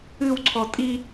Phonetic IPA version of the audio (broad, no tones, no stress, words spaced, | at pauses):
ɨwǀʰɔ tʼi